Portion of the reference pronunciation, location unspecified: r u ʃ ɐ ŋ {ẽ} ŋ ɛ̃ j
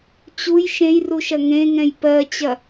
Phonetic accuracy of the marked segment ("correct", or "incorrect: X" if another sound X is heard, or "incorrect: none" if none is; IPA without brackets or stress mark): correct